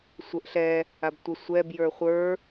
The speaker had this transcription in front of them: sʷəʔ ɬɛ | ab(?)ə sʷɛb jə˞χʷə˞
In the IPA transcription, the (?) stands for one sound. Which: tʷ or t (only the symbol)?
tʷ